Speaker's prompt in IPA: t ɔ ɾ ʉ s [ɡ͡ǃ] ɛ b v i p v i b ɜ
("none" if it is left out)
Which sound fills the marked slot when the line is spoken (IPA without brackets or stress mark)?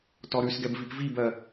ɡ